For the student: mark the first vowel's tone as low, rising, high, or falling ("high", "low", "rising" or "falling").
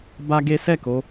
high